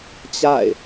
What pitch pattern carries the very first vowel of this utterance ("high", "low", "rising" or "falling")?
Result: falling